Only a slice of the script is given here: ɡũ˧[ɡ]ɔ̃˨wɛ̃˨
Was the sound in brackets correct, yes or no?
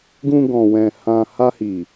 yes